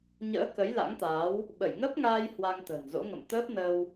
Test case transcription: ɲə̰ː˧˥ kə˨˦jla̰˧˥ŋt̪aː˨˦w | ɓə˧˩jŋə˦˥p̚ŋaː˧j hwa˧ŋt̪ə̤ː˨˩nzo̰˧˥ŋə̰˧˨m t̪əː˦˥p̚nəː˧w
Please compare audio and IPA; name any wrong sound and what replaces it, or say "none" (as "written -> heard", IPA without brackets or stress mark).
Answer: none